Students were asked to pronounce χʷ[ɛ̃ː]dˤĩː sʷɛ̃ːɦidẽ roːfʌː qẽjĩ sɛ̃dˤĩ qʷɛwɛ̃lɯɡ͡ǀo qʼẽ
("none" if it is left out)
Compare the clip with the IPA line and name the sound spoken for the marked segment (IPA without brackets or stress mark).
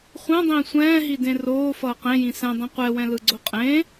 ɛ̃